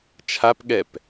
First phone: t͡ʃʰ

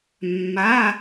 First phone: mː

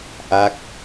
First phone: ʔ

